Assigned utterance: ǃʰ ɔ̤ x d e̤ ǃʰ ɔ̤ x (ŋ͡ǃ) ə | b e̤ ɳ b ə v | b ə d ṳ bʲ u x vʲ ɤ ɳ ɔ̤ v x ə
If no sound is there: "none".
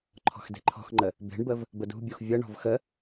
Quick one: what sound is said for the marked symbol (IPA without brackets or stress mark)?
ŋ͡ǃ